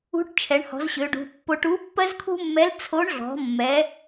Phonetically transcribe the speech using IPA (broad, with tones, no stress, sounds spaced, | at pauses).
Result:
ṳ˧˥ ʈ t͡ʃʰ ɛ˩˧ ɳ h ɔ̤˩˧ z ɕ ø˩˧ ɖ ṳ˩˧ pː o˧ ʈ u˧˥ pː ɜ˥ z kʰ ṳ˥ mː ɛ˧˥ l t͡sʰ o˧˥ ɳ ɮ ɔ̤˩˧ mː ɛ˩˧